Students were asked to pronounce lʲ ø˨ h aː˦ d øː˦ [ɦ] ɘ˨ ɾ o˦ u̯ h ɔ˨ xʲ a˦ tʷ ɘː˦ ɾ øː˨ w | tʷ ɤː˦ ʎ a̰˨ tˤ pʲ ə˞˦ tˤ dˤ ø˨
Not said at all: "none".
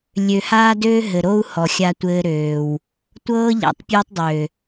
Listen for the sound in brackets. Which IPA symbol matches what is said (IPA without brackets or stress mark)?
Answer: ɦ